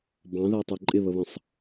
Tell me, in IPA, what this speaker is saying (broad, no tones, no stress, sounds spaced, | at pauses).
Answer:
b ɑ̃ ð æ tˤ ə˞ ǃʼ ɪ β ə β ə̃ sˤ